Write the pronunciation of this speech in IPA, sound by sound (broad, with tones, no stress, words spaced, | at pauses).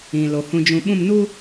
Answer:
ĩ˨lo˨ hũ˨d͡ʒũ˨ɓũ˦˨mnu˦